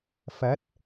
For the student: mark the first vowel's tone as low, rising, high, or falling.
rising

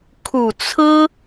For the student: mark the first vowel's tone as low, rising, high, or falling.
low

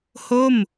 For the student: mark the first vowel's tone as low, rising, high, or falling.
falling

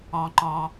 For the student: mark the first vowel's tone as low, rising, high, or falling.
low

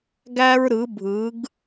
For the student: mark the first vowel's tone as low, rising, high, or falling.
high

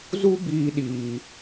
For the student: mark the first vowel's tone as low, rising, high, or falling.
high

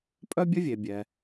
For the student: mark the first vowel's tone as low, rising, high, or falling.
high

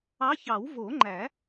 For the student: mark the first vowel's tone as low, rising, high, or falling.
rising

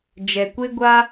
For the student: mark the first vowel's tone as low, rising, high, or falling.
low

